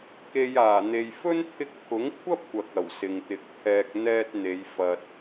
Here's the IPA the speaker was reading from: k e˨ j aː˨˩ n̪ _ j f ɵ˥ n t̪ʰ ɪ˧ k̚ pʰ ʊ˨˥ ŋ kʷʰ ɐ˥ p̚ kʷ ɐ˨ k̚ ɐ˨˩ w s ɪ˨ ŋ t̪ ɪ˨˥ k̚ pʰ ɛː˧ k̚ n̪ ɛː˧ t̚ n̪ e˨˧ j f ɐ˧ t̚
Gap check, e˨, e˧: e˨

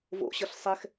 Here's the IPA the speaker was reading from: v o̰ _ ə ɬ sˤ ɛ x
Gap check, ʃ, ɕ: ɕ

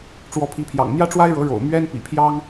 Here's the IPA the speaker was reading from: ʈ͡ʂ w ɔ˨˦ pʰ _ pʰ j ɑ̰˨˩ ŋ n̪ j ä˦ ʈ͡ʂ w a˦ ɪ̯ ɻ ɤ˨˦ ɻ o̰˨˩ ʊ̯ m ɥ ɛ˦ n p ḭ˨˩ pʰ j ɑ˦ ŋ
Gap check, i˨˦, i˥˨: i˨˦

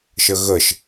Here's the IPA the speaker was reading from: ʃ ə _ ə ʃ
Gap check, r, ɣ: ɣ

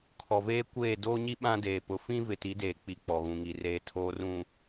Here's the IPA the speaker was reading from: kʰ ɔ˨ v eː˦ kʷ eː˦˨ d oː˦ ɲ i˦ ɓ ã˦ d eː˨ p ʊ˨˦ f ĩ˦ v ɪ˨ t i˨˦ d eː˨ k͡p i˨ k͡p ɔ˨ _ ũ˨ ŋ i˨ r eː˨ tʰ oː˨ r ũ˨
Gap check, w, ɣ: ɣ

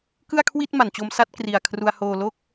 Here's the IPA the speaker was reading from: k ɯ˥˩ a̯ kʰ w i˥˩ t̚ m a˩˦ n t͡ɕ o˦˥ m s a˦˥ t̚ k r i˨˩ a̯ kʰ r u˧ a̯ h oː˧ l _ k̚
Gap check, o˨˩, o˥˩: o˥˩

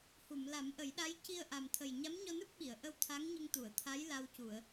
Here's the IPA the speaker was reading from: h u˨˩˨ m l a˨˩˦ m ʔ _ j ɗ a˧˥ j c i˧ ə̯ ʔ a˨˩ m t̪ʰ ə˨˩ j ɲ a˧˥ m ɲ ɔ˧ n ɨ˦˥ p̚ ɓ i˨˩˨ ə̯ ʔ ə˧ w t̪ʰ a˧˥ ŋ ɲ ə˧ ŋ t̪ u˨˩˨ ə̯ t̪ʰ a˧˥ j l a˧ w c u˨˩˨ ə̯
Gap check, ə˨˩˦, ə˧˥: ə˨˩˦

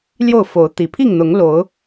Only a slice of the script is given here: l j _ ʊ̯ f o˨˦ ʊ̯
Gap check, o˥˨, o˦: o˥˨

